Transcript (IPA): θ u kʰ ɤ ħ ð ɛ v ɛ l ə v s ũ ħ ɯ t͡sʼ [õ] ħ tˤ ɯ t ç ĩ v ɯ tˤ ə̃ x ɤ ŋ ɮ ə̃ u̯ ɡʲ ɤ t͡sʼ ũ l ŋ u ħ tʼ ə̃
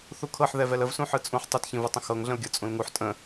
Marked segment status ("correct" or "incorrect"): incorrect